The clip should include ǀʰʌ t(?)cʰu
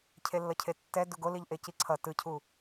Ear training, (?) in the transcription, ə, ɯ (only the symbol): ɯ